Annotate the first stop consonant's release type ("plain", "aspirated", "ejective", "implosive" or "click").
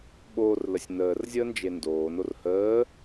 implosive